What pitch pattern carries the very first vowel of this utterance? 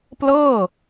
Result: falling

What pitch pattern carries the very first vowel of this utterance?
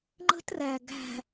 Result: high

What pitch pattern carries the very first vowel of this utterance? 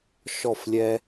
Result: falling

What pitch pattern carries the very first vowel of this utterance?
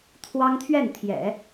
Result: high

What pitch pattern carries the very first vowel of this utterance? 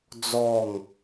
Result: falling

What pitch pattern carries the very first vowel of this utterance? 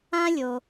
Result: high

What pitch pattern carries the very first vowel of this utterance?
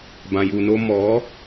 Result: low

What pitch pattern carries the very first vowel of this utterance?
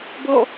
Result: falling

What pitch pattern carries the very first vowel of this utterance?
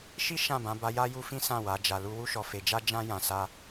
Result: high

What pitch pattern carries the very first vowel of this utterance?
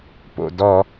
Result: low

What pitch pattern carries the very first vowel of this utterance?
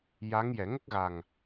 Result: rising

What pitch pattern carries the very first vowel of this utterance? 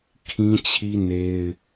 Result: high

